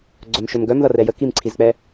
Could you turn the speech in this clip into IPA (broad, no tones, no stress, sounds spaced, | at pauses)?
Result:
ɡ͡ǀ œ m ʃ ɵ m ɡ œ m ð ʌ r ɛ j ə k i m ǀʰ i z k͡p ɛ